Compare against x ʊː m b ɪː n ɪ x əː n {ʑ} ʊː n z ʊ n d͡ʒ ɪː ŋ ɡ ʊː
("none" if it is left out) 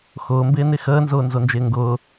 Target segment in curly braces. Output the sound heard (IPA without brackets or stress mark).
z